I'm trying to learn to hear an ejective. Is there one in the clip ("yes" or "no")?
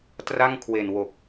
no